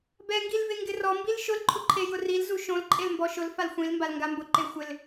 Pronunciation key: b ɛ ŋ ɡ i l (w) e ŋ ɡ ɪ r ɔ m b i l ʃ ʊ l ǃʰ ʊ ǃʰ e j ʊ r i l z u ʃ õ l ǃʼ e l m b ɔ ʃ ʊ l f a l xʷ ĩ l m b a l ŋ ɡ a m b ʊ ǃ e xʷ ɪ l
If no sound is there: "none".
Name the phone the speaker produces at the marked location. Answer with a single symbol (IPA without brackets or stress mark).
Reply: v